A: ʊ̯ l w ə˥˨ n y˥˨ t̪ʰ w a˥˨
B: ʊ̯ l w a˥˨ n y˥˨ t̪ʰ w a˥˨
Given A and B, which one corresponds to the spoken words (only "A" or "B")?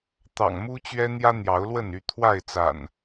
A